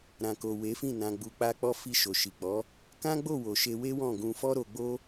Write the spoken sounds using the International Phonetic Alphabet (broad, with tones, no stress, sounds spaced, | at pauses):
ɾ ã˨ k o˨ w e˨˦ f ĩ˦˨ n ã˧ ɡ͡b u˧ k͡p a˦ k͡p ɔ˦ f i˧ ʃ o˨ ʃ i˨ k͡p ɔ˨˦ | k ã˦ ɡ͡b o˦˨ w o˨ ʃ e˧ w e˦ w ɔ̃˦˨ ɡ ũ˧ f ɔ˦ ɾ o˧ ɡ͡b o˦